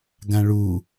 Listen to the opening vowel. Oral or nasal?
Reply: nasal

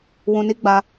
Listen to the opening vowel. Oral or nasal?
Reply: nasal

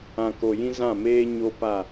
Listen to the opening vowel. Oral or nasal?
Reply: nasal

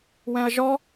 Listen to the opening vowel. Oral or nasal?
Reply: nasal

